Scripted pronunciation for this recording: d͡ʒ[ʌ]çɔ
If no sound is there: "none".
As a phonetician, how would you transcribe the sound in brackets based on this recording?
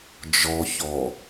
ɔ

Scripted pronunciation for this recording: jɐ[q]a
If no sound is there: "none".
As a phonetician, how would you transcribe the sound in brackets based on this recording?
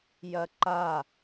ǃ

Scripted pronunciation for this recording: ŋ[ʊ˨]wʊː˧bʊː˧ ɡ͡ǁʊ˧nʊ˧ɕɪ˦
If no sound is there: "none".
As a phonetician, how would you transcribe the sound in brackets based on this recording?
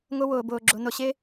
ʊ˦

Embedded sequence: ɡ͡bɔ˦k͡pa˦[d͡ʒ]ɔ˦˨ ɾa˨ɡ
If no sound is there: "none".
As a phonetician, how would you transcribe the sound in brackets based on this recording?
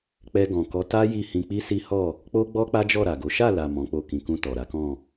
d͡ʒ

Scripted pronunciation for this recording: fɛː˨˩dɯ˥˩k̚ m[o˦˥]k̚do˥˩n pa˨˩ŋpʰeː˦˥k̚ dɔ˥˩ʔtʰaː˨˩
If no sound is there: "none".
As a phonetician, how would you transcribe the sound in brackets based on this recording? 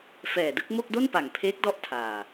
o˥˩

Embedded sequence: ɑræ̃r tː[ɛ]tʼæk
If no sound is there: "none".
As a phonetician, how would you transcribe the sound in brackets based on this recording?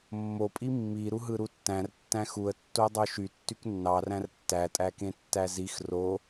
æ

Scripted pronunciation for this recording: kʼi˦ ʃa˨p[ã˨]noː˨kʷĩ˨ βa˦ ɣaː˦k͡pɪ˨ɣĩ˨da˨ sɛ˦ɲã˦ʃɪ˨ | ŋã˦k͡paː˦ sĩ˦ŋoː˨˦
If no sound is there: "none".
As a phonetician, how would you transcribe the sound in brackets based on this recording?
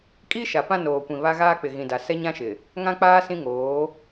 ã˦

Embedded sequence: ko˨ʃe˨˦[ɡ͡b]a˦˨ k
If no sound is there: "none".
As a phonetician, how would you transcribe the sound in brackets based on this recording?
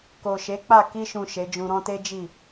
k͡p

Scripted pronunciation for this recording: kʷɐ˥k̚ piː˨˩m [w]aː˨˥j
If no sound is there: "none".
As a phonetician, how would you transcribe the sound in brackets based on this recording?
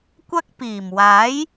w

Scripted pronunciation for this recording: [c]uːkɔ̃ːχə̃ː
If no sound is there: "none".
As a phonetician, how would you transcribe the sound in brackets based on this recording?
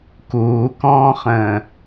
k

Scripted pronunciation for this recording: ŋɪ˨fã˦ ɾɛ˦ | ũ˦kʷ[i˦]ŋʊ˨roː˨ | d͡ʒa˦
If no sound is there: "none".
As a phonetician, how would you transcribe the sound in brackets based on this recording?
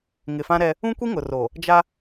i˦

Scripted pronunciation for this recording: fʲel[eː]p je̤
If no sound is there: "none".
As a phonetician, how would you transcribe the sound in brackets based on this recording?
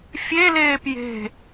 eː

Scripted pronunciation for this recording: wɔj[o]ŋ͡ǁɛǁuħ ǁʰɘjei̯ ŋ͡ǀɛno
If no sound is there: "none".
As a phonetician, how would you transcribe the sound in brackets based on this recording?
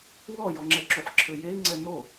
ɔ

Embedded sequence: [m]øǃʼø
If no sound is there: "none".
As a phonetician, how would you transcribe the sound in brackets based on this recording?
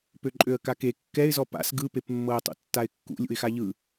p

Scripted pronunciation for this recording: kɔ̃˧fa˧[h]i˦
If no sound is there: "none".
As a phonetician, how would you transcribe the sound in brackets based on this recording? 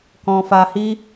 h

